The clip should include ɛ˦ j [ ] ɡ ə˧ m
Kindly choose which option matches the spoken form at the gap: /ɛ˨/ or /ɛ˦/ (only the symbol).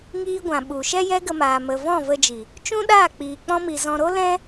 ɛ˦